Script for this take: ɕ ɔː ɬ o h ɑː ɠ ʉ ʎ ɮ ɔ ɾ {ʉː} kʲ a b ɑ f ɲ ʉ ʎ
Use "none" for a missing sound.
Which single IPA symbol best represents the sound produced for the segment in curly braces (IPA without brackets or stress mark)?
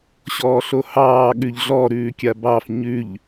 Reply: ʉː